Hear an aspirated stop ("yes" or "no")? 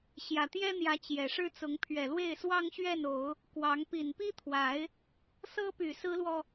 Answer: yes